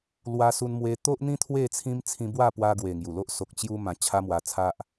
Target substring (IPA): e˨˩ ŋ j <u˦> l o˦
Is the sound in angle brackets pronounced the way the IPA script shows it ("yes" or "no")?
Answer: no